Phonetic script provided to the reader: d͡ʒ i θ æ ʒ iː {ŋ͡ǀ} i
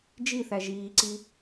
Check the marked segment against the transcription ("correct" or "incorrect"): incorrect